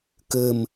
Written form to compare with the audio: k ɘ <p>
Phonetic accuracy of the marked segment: incorrect: m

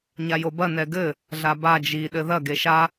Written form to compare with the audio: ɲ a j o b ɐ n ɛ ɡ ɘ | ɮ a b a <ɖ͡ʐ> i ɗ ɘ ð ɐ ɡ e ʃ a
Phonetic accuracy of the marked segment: incorrect: d͡ʒ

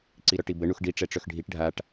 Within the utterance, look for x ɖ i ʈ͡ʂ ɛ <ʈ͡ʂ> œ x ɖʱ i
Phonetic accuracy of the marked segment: correct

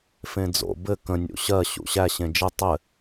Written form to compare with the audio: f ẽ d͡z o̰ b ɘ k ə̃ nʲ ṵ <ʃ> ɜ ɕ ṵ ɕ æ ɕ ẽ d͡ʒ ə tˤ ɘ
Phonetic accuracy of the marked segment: incorrect: ɕ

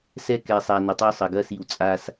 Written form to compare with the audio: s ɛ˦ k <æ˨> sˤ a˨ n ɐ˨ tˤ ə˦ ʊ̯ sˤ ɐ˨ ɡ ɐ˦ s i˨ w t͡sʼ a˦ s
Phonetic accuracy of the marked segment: incorrect: ɛ˨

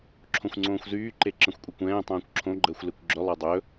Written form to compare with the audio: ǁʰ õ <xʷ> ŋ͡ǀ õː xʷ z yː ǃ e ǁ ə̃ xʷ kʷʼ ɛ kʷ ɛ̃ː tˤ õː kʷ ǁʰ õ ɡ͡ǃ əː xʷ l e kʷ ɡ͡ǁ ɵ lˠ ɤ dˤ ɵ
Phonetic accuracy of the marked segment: correct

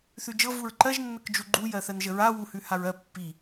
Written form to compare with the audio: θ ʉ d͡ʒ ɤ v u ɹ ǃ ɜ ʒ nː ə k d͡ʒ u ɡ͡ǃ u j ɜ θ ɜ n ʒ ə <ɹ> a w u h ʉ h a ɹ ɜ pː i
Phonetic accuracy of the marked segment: correct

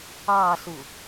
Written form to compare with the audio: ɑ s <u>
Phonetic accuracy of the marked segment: correct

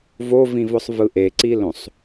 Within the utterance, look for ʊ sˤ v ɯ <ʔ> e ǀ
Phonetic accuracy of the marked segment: correct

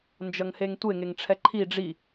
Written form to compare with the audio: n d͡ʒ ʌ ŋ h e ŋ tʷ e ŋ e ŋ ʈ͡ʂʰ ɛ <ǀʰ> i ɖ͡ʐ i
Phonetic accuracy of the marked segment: incorrect: ǃʰ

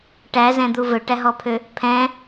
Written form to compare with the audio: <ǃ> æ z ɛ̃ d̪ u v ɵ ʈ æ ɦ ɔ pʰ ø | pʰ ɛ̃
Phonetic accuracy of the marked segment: incorrect: ʈ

